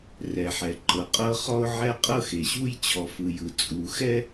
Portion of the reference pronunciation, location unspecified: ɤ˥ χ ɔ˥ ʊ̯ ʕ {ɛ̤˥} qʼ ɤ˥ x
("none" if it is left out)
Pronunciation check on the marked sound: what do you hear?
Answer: ɛ˥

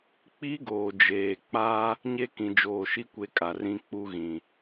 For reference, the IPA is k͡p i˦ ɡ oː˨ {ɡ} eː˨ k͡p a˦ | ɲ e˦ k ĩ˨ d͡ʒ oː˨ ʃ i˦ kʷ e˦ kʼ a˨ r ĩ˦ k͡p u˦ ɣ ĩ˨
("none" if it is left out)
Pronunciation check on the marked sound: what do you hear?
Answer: d͡ʒ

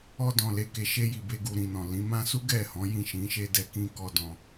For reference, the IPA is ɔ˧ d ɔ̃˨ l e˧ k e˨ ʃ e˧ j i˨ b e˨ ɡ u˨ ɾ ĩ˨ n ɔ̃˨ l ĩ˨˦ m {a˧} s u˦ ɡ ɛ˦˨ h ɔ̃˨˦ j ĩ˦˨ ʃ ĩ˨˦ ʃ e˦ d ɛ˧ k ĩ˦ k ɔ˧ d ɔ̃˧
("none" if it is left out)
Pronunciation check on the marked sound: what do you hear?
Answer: ã˧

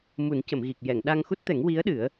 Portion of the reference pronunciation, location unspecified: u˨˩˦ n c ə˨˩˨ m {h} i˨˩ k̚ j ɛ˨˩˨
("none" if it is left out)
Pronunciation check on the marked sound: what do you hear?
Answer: ɣ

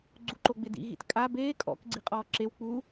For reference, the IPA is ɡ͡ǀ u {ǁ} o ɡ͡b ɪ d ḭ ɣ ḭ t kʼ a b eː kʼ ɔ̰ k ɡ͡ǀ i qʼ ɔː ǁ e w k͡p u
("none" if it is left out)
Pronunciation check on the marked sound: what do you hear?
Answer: ǃ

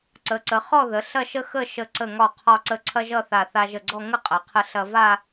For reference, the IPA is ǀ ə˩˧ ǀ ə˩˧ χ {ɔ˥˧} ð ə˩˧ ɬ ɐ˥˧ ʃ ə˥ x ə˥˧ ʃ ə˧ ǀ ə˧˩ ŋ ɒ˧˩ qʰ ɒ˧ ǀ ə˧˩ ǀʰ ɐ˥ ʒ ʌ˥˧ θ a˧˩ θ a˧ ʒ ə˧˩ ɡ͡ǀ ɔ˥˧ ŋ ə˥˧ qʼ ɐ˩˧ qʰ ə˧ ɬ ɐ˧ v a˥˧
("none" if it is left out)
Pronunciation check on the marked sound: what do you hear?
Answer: ɔ˥˧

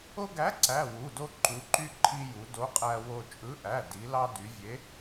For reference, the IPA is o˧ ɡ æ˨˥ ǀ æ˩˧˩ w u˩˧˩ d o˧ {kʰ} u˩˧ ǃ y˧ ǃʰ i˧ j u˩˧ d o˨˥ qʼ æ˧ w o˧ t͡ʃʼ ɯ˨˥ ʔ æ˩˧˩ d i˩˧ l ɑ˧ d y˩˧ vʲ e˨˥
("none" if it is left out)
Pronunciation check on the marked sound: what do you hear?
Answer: ǃ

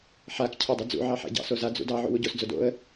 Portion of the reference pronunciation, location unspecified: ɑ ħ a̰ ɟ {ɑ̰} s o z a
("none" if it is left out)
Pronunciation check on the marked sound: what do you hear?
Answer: ɑ̰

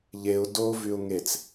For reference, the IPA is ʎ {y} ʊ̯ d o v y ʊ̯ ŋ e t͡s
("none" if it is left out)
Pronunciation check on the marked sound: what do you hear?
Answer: e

